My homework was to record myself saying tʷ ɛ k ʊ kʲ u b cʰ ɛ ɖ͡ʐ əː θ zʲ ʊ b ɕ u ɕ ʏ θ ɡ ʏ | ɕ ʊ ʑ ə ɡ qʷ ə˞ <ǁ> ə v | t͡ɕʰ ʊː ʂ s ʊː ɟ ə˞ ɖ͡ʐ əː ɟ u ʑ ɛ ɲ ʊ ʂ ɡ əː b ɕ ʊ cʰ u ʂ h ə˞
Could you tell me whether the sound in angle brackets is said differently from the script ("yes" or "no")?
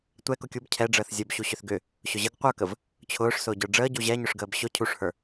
yes